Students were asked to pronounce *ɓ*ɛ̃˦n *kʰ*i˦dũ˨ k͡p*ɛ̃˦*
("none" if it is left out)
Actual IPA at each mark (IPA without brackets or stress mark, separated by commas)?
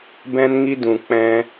b, ŋ, ɛ̃˦